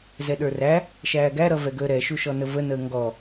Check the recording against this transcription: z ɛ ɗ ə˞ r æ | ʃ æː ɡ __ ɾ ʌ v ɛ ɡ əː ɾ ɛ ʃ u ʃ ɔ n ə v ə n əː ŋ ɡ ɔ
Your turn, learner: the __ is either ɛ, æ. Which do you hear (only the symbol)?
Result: æ